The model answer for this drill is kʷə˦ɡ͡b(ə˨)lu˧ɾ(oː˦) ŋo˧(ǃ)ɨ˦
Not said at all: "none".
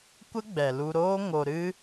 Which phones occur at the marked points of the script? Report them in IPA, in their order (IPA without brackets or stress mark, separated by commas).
ɛ˨, oː˦, ɾ